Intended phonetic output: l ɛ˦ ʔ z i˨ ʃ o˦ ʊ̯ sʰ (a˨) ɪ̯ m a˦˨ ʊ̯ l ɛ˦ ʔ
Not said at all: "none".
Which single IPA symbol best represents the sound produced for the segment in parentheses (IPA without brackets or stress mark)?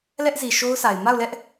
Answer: a˨